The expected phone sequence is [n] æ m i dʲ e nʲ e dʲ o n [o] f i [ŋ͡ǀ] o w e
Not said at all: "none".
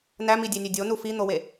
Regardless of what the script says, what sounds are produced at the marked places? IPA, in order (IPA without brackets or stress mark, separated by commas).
n, u, n̪